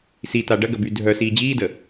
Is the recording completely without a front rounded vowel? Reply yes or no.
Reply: no